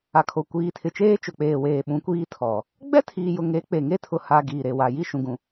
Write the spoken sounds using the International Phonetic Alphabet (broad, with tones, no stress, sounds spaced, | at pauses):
a˨ kʰ o˨ kʷ iː˨ tʰ ɪ˨ t͡ʃ eː˦ t͡ʃ ʊ˨ k͡p eː˨ w eː˨ ɓ ũ˨˦ kʷ iː˦ tʰ ɔ˨ | ɡ͡b ɛ˦ tʰ iː˨ j ʊ˨ ŋ e˨˦ k͡p e˨ ŋ e˦ tʰ ʊ˨ h a˨ ɡ iː˨ ɾ e˨ w a˨ j i˦˨ ʃ ũ˨ ɡ ũ˨